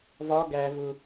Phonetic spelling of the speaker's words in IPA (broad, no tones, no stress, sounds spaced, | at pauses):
v ɒ ɡ æ v ʊ